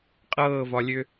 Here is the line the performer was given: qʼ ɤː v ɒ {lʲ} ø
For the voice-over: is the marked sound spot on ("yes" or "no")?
yes